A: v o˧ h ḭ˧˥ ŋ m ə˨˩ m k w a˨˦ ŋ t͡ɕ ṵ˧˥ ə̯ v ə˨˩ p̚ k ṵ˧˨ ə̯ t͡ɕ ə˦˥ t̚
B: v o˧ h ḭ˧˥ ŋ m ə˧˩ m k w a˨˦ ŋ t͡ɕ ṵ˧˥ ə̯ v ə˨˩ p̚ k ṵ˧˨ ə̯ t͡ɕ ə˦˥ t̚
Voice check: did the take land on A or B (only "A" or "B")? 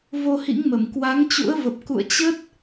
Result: B